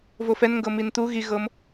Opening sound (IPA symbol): v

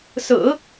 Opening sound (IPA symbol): s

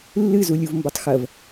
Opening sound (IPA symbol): lː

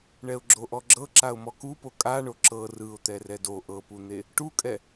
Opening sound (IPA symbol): ɳ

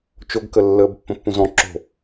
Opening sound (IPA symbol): t͡ʃ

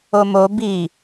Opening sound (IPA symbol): o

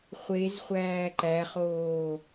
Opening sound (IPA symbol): χʷ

